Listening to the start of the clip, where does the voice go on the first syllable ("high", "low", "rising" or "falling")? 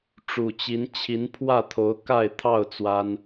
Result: low